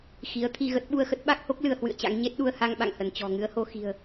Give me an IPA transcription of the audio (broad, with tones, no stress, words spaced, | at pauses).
xi˨˦ə̯t̪ʰi˧ɣə˦˥t̚ ɓu˧ə̯xə˦˥t̚ɓa˦˥k̚ho˦˥k̚ lɨ˧ə̯hwɨ̰˧˨ə̯t͡ɕa̰˧˥ŋ ɲe˦˥t̚ɗu˧ə̯ha˧ŋ ɓa̰˧˨ŋhə˧˩nt͡ɕɔ̤˨˩ ŋɨ˨˦ə̯ho˧ xi̤˨˩ə̯